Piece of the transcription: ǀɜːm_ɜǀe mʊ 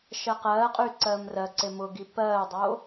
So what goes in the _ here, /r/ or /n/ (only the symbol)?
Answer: r